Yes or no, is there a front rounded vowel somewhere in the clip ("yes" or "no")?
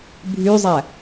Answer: yes